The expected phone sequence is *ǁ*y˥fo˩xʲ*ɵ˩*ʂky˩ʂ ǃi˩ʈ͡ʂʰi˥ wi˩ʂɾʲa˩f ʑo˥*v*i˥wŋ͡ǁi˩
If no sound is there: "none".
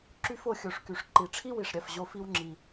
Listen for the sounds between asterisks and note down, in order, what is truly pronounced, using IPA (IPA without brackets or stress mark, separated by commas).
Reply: ǁ, o˩, f